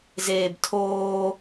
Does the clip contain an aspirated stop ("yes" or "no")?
yes